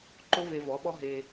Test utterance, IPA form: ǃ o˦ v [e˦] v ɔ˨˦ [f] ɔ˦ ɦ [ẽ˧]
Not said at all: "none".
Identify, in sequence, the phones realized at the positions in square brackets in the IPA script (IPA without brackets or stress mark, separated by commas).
e˧, ɓ, e˧